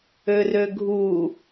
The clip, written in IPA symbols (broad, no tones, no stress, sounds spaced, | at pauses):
ø r ø ɡʱ u